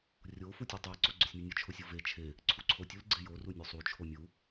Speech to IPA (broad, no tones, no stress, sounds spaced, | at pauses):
rʲ o f u tʲ u tˤ e ǀ o ɡ͡ǀ ʊ sʲ mʲ o nʲ ʊ t͡ʃʰ ʊ sʲ ʊ v e t͡ʃʰ e | ǀʰ u ǀʰ o tʲ ʊ l ɡ͡ǀ e j o r u nʲ u sˤ u t͡ʃʰ o mʲ u